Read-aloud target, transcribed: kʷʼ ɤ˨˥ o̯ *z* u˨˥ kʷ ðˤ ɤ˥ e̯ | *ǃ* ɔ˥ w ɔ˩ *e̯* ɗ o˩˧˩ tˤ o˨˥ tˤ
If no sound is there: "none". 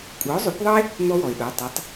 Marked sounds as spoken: zˤ, n̪, e̯

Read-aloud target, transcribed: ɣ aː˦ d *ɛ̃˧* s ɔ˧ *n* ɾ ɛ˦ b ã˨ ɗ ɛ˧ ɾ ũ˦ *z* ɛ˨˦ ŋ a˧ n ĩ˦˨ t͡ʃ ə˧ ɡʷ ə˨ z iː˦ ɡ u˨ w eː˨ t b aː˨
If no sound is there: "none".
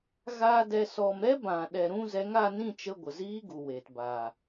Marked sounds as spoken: ɛ˧, m, z

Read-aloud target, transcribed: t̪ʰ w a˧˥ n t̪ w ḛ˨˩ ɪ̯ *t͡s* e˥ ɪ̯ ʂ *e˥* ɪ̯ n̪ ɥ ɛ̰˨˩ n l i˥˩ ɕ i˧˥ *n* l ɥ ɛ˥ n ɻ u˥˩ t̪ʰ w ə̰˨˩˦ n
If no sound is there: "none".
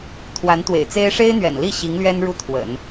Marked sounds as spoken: t͡s, e˥, ŋ

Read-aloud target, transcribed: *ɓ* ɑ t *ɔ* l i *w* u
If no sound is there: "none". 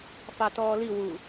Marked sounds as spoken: f, ɔː, w

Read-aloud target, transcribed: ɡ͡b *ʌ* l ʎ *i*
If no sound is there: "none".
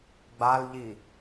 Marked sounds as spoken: a, i

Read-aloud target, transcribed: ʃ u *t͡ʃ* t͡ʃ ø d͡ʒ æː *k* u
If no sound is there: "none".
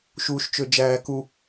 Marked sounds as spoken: ʃ, k

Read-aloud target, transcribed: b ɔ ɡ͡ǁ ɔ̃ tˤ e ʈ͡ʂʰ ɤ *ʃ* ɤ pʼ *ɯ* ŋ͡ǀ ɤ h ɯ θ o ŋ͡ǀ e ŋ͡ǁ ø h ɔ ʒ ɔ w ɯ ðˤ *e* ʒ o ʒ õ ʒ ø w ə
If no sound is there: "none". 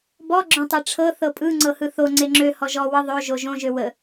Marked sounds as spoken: θ, ɯ, ø

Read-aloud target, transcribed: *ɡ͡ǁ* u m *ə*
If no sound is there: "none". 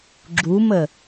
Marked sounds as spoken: ɡ͡ǁ, ə

